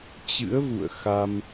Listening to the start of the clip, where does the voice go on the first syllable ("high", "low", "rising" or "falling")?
rising